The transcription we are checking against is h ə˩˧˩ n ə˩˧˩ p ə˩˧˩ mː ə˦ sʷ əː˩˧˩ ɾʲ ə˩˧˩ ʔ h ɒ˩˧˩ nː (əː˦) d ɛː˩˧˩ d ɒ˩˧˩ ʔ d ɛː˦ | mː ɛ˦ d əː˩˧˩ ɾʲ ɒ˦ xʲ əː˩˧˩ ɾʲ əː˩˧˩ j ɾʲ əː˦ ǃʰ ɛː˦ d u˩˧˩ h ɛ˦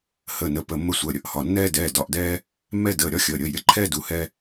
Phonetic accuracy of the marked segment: incorrect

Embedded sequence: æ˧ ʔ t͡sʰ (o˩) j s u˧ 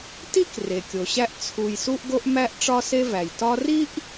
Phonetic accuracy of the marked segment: incorrect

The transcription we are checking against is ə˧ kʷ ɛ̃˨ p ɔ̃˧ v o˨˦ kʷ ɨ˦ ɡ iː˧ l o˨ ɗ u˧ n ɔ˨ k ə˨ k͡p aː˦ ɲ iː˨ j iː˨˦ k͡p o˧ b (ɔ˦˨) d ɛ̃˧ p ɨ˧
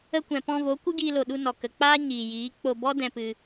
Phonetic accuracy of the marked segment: incorrect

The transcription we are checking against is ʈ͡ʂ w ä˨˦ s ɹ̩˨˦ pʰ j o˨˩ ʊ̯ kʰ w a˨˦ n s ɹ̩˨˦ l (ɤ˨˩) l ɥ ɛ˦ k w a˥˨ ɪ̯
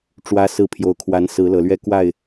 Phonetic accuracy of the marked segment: correct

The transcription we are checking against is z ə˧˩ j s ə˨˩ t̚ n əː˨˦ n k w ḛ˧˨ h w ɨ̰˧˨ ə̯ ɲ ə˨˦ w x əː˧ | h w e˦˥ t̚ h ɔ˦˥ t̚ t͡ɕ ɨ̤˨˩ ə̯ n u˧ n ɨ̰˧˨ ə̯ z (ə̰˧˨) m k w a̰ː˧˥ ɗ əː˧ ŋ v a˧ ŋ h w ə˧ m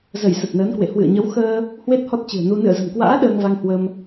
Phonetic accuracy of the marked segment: incorrect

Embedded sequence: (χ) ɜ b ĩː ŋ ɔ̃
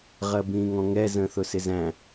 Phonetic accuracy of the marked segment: incorrect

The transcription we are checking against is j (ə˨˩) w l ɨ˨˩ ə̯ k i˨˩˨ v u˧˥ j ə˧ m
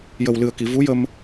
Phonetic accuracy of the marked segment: correct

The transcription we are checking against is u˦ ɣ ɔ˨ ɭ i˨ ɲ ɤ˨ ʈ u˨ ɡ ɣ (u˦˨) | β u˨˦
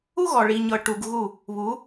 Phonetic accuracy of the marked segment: correct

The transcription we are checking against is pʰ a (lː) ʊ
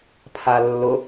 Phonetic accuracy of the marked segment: correct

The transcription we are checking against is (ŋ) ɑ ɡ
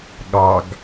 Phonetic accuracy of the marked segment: incorrect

